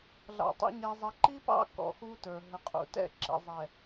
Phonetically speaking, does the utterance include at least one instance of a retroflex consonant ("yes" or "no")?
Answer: no